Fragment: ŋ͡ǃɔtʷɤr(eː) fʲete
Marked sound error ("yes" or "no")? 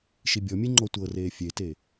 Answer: no